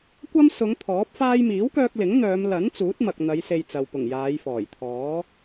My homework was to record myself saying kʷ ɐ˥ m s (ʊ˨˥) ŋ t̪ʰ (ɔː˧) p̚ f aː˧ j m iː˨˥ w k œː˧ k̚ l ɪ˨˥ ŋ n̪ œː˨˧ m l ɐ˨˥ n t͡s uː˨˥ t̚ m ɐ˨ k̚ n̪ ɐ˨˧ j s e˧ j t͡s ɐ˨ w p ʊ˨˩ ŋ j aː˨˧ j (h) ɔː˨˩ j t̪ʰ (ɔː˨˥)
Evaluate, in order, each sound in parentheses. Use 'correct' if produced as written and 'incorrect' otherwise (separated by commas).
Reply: incorrect, incorrect, incorrect, correct